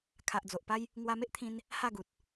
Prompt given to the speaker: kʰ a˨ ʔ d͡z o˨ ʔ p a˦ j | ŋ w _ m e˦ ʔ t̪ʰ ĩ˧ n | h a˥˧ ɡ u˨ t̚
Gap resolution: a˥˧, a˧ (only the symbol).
a˧